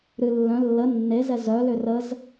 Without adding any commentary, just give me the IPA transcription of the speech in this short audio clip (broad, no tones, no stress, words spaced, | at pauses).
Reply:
ɾɨ lːœ̃ lːə nːezɛ zœlʏ rəz